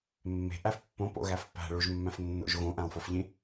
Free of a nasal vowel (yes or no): no